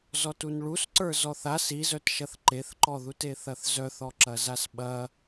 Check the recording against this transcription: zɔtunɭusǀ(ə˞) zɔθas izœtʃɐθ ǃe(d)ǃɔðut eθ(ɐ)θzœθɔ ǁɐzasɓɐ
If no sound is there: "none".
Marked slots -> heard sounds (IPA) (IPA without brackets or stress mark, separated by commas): ə˞, θ, ɐ